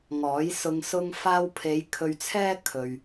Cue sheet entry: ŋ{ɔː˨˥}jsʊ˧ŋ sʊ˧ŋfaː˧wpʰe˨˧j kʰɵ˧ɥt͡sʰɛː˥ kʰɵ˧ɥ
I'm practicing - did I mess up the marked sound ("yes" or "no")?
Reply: no